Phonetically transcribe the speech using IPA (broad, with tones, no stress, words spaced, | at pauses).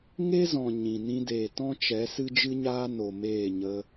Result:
ŋe˦zɔ̃˨ ɲĩ˨ nĩ˧deː˨ tɔ̃˦t͡ʃɛ˨˦ sɨ˦d͡ʒɨ˦ɲaː˦ no˨meː˦˨ ɲə˧